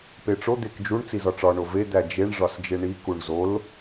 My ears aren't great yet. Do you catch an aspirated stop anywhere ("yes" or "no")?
no